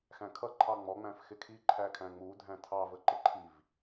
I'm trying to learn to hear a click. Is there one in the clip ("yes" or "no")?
yes